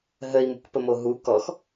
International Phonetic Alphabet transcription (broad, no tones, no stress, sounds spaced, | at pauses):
ɦ ə i̯ m ṳ k p ə m o ɦ u k ɔ x